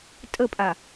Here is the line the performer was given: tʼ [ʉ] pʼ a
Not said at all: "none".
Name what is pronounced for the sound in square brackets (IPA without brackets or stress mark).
ə